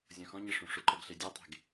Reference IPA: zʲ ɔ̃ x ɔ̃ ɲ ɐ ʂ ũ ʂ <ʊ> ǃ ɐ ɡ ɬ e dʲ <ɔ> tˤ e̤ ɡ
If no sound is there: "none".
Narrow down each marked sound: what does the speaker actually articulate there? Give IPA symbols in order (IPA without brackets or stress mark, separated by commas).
ʊ, ɔ